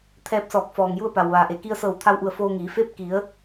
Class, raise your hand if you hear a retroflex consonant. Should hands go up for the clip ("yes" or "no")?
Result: no